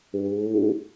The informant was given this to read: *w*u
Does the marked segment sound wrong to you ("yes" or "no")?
no